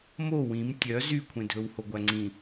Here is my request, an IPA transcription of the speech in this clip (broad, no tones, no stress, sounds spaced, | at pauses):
m o w ĩ m tʲ œ z y kʷʰ ẽ dʱ ɵ w h o ɡʷ æ ŋ͡ǀ ĩ